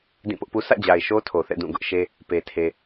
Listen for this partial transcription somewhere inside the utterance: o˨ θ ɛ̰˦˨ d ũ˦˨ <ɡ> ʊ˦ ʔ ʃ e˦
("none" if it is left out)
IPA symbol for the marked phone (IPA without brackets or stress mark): ɡ